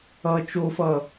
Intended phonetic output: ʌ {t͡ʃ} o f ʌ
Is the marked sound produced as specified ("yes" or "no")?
yes